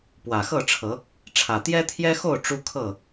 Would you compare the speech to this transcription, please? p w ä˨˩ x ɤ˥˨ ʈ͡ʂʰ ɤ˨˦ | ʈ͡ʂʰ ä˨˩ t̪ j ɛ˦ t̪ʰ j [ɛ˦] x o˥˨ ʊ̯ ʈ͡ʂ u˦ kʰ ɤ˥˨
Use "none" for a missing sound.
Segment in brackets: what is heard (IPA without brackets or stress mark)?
ɛ˦